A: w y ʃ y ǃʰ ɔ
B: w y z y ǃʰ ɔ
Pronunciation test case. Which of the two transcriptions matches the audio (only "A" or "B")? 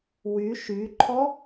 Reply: A